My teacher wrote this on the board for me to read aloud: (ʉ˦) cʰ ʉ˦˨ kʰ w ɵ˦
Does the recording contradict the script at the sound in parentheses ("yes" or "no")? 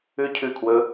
no